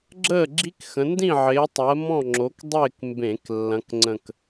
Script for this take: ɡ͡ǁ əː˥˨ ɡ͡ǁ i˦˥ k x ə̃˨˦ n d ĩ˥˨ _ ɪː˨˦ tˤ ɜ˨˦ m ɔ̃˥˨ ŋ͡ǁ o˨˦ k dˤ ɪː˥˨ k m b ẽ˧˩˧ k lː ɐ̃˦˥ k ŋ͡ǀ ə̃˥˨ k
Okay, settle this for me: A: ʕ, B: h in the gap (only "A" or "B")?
A